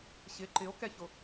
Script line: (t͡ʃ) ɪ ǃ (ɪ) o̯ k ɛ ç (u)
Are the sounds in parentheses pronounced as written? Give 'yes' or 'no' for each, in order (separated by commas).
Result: no, yes, no